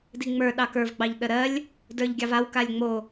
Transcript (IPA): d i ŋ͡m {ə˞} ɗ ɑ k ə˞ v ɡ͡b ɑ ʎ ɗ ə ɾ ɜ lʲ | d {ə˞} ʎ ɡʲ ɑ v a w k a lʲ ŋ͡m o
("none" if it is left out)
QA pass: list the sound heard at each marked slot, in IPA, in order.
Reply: ə˞, ə˞

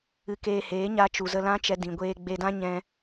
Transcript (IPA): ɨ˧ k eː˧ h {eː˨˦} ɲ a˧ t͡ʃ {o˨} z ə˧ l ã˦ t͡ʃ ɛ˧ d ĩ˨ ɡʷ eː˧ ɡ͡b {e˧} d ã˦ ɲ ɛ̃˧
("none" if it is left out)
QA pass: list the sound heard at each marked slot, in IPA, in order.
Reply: eː˨˦, u˨, e˧

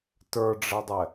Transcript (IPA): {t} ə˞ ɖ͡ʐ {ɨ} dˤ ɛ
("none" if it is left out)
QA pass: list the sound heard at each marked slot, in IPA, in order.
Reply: t, ɛ

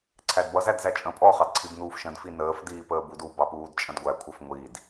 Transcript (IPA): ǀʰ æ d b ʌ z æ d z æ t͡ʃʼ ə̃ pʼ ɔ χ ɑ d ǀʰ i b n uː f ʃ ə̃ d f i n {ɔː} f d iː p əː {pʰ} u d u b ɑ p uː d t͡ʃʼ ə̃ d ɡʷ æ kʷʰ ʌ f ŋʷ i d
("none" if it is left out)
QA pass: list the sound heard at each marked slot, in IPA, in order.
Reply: əː, b

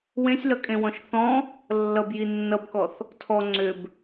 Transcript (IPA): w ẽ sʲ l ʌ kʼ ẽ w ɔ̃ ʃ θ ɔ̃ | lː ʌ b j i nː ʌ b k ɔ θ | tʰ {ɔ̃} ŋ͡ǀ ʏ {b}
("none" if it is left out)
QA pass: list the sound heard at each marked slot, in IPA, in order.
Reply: ɔ, b

